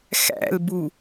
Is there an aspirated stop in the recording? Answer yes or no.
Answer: no